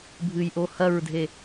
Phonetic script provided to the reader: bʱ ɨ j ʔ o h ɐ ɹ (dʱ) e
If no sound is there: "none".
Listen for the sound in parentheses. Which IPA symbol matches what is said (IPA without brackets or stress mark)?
dʱ